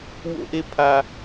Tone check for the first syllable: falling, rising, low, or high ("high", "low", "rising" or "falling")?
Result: high